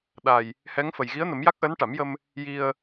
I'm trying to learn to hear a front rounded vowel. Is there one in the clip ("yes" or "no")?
no